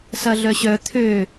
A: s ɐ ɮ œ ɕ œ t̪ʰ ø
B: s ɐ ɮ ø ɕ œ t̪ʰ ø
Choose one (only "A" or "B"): A